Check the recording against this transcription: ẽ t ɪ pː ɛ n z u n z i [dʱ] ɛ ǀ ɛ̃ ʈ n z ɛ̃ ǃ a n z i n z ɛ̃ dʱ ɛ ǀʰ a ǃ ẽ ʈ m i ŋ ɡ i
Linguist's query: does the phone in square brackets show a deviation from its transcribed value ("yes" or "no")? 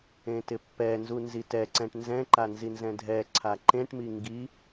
yes